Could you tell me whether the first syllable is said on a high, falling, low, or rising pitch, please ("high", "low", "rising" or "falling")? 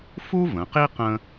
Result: high